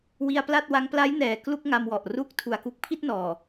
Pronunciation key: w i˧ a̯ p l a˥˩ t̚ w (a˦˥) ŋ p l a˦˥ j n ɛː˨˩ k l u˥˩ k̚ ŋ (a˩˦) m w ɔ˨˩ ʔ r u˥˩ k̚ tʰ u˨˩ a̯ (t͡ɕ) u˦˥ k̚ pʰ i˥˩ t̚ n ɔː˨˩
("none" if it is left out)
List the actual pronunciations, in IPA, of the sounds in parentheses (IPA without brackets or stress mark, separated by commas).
a˦˥, a˧, k